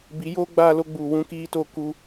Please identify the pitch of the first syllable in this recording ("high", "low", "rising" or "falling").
rising